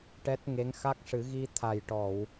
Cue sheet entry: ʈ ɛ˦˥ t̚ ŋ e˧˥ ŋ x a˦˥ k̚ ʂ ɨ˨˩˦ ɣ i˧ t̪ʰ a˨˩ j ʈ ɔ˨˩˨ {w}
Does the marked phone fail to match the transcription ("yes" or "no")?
no